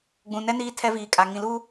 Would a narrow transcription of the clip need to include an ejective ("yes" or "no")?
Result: yes